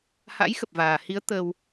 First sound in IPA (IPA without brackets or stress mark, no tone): h